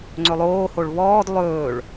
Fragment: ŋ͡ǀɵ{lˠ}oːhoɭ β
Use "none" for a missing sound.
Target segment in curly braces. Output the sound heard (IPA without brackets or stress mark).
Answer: lˠ